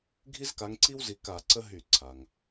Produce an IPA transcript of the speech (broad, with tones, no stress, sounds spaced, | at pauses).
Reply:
ɡʱ i˦ z k a˨˦ ŋ ǀ i˦ w z i˨˦ k a˧˩˧ ǀ ə˦ ɦ y˧˩˧ ǀʰ a˩ ŋ